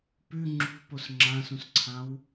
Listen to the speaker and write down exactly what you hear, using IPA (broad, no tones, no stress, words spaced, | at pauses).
pʉ ŋ͡ǁṳpos ŋ͡ǁãsũsǀʰãw